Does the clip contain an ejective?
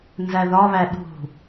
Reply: no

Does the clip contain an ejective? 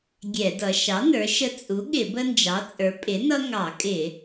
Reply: yes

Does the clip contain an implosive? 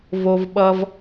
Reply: yes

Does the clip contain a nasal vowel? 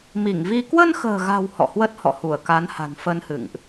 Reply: no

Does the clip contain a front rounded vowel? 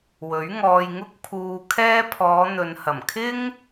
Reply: no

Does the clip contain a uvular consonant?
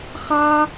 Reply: yes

